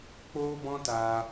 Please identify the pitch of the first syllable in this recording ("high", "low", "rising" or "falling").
high